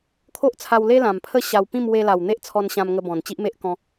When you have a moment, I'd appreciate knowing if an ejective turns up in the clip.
no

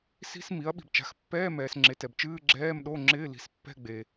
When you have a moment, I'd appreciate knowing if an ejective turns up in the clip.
no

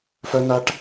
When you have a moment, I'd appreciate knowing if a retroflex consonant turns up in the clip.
yes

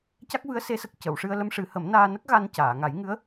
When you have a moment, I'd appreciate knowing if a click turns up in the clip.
no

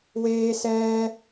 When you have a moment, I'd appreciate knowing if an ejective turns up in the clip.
no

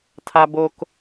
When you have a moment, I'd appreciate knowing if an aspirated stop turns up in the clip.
yes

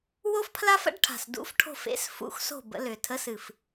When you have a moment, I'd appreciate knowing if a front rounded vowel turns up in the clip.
yes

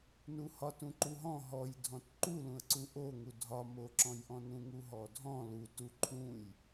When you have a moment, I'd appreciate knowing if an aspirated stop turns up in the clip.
yes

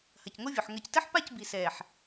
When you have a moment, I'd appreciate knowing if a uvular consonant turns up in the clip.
no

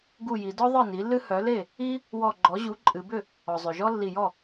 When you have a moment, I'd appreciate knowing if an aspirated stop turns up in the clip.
no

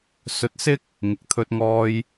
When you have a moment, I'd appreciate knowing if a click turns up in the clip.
no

